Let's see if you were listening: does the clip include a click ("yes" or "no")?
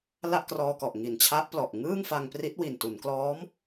no